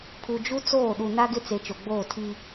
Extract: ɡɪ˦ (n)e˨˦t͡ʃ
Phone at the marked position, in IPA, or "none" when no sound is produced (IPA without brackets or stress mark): t͡s